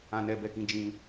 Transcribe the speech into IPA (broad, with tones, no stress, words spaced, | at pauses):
ã˦nɛ˦bɛ˦kĩ˦ d͡ʒĩ˧